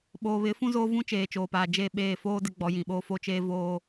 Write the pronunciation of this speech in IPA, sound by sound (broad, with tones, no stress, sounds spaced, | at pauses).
ɓ oː˨ β ɪ˨˦ f ũ˦ z oː˦ v ũ˦ t͡ʃ eː˨ t͡ʃ oː˨ p aː˨ d͡ʒ e˦˨ ɓ eː˦˨ f oː˦ d ɪ˦ ɡ͡b ɔ˨˦ j ĩ˨ ɓ oː˦ f o˦ t͡ʃ eː˦ v oː˦